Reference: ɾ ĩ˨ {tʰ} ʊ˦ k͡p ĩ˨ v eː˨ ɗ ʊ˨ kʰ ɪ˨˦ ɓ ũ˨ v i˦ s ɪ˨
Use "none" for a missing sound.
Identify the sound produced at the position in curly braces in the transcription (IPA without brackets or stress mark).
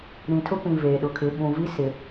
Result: tʰ